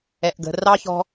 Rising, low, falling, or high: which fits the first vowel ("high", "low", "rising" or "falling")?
low